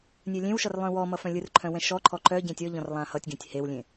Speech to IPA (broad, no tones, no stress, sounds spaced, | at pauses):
nʲ œ lʲ ẽ w ʃ ʌ r lˠ œ̃ w ɔ m ʌ f œ̃ lʲ ɯ r ǃʰ œ̃ w ɛ̃ ʃ ɔ ǃʰ ɔ ǃ œ ɟ ẽ tʲ ɔ ʎ ɔ̃ r lˠ ã h ʌ tʲ ɡ ẽ tʲ h e w lʲ ẽ